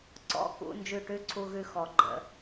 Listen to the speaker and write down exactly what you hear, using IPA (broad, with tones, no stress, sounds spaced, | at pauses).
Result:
ǀ ɔ̰˧˥˧ k ṵ˧˥˧ n d͡ʒ ʉ˦˨ ʈ ʉ˧˥˧ ǀʰ u˧˥˧ ɣ ʉ˦˨ x ɔ˨˩˦ ɡ͡ǃ ə̰˨˩˦